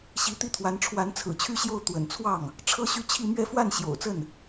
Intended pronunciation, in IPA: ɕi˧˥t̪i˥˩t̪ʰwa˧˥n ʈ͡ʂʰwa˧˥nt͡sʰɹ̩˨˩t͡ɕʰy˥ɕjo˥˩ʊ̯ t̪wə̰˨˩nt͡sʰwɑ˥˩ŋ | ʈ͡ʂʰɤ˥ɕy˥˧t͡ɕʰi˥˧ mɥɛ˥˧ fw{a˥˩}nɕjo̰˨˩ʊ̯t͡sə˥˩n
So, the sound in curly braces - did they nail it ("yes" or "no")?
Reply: yes